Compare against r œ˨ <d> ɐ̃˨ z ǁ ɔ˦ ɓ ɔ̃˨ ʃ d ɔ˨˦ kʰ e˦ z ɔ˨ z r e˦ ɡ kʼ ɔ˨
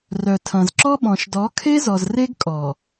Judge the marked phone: incorrect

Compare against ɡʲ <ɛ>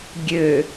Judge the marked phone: incorrect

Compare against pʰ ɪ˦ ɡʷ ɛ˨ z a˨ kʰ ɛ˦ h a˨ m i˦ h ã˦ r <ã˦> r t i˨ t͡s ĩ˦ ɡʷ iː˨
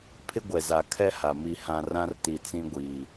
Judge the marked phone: correct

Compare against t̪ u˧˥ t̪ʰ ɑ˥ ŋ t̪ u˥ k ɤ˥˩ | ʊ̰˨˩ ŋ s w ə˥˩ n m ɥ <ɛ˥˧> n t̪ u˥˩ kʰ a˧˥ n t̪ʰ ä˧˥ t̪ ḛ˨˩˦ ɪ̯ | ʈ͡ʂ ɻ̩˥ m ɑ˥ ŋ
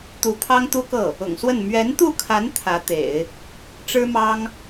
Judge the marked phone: incorrect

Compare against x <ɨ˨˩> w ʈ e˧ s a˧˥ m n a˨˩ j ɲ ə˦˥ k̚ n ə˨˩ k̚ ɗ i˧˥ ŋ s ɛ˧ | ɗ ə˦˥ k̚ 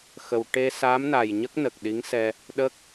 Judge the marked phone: incorrect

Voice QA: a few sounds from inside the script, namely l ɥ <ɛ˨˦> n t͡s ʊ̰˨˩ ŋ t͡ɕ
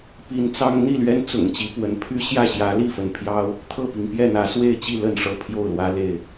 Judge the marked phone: incorrect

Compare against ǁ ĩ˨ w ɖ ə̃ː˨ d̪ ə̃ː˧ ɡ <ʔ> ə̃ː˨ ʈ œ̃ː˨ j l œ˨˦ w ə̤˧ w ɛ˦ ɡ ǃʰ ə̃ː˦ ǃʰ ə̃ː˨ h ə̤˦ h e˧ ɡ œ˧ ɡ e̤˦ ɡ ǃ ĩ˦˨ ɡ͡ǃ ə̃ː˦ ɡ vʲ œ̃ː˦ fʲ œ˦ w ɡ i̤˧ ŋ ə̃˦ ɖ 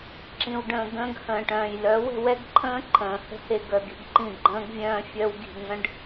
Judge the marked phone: incorrect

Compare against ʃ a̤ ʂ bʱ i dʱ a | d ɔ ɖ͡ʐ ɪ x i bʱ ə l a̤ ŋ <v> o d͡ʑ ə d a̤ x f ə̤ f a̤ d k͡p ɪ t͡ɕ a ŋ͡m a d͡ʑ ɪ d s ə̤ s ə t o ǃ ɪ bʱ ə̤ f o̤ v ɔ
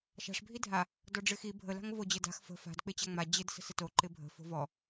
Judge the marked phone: correct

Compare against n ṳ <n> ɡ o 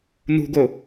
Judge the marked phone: incorrect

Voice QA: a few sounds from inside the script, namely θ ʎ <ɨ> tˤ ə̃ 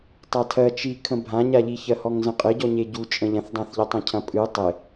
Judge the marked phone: incorrect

